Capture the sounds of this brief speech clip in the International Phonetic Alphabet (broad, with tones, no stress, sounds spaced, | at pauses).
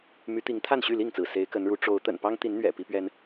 m y˨˦ t̪ i˨˦ ŋ t̪ʰ a˥˨ n ɕ y˥˨ l i˥˨ ŋ t͡s ɹ̩˩ s e˨˦ ɪ̯ k ə˨˦ n ɻ u˨˦ ʈ͡ʂ o˨˦ ʊ̯ t̪ ə̰˨˩ n p ɑ˦ ŋ t̪ i˨˦ n n̪ ɥ ɛ̰˨˩ p i˦ p ɥ ɛ˦ n